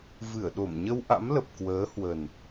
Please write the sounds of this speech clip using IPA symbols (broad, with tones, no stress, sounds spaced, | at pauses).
v ɨ˧˩ ə̯ ɗ o˧˩ m ɲ ə˧ w ʔ a̰˧˥ m l ə˨˩ p̚ k w əː˨˦ h w ə˨˩ n